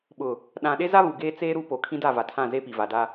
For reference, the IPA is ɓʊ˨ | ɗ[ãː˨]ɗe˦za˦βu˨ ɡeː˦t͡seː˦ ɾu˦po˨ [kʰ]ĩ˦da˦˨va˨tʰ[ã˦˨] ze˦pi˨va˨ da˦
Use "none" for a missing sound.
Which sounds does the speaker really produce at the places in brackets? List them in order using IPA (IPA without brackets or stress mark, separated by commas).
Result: ã˨, kʰ, ã˦˨